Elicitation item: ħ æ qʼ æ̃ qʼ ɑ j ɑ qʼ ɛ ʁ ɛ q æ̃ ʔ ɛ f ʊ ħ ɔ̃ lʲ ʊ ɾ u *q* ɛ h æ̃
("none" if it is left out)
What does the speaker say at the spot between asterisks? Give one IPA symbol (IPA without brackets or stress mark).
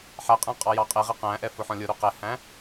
q